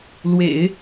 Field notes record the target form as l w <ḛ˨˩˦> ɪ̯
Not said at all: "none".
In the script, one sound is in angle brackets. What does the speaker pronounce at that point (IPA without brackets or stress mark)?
ḛ˨˩˦